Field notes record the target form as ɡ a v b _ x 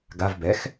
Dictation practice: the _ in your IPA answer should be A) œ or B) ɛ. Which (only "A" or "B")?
B